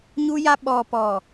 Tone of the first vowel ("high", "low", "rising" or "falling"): high